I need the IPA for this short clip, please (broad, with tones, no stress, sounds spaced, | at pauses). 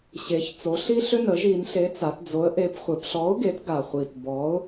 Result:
ɕ e˩˧ ç t͡s o˩˧ ɬ i˦ ɬ ʏ˦ n ə˩˧ ʒ i˩˧ n ɬ e˨˥ t͡s a˩˧ t d͡z o˨˥ ə̯ ʔ e˨˥ p χʷ e˩˧ p ɬ ɔ˨˥ ʊ̯ ɡ e˨˥ t ɡ a˨˩ χʷ i˨˩ t b ɔ˨˥ ʊ̯